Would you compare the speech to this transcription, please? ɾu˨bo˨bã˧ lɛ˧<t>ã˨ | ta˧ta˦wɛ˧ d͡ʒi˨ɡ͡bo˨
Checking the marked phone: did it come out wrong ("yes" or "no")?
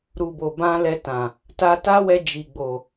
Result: no